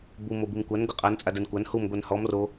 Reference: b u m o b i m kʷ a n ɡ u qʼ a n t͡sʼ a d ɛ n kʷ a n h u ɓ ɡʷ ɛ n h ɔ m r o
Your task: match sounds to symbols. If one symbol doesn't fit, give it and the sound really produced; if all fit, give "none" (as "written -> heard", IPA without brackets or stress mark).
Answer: ɓ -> m